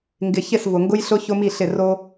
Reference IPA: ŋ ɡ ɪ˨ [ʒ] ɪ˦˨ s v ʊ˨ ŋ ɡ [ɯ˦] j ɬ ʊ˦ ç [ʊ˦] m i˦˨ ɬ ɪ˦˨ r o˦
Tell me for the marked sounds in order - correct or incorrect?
incorrect: ç, incorrect: ʊ˦, correct

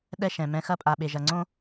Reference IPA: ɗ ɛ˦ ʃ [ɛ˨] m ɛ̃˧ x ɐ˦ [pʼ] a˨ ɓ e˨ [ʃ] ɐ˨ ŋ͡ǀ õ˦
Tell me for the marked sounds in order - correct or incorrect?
incorrect: ɛ̃˨, correct, incorrect: ʒ

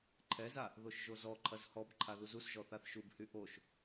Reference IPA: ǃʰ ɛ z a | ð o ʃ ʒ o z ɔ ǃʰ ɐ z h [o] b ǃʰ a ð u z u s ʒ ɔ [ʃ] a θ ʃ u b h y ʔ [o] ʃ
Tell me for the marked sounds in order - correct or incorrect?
incorrect: ɔ, incorrect: θ, correct

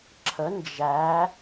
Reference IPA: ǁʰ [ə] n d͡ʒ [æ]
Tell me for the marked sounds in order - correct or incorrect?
correct, correct

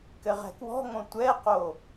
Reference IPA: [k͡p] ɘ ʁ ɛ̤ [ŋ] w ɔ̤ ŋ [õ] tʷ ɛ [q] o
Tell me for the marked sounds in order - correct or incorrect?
incorrect: k, incorrect: k, correct, correct

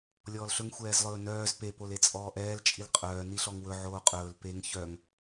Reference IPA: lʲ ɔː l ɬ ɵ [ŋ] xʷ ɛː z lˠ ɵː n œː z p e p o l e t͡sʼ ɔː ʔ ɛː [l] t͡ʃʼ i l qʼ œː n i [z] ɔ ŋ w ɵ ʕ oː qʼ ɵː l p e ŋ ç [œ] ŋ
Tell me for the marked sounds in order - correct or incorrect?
correct, correct, incorrect: ɬ, correct

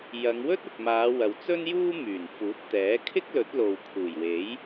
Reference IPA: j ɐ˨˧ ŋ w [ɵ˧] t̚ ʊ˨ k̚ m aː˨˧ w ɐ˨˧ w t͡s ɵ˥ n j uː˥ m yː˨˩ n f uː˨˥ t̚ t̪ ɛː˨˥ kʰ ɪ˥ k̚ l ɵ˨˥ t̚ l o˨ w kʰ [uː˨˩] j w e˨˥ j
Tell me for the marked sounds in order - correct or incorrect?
incorrect: ɵ˥, correct

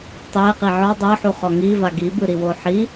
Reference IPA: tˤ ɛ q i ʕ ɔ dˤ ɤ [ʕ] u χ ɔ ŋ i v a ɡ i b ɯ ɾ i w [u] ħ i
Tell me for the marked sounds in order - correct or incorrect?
incorrect: ħ, incorrect: o

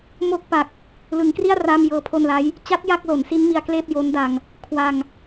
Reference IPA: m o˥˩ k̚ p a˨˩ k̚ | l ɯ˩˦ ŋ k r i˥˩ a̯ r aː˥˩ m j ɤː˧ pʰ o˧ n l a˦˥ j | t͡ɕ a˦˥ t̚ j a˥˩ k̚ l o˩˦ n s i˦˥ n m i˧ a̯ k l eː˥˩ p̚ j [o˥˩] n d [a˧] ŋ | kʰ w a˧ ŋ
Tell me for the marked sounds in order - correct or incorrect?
incorrect: o˦˥, correct

